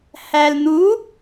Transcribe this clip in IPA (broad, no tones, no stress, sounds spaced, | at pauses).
h æ l n̪ u